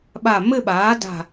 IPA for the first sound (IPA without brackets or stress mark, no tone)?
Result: ɓ